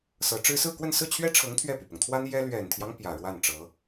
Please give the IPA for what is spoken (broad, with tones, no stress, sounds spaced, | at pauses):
s ɤ˧˥ ʈ͡ʂ ɻ̩˥ s ɹ̩˥˧ k w ə˥˧ n s ɹ̩˥˩ t͡ɕʰ ɥ ɛ˥ ʈ͡ʂʰ ɤ˧˥ ŋ t̪ʰ ɥ ɛ˥˩ p y˩ p ʊ˩ ŋ t̪ʰ w a˥ n j ɛ˥ l ɥ ɛ˨˩ n t̪ʰ j ɑ˦ ŋ p j ä˨˩ ɻ w a˥˩ n ʈ͡ʂ ɤ˧˥